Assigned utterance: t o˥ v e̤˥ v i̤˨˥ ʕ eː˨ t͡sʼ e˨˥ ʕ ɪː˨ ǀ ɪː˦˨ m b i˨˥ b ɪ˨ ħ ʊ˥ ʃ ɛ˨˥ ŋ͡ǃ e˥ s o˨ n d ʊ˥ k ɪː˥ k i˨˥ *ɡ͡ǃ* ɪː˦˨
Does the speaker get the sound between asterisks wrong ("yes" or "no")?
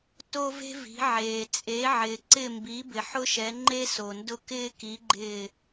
no